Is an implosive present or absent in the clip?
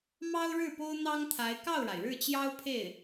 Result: absent